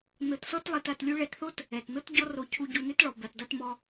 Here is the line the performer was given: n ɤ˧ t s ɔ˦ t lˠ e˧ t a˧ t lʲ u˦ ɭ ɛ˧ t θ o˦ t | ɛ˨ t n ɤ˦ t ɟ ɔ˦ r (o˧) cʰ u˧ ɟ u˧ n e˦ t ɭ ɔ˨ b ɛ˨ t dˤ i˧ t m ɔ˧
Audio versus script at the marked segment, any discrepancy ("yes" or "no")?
no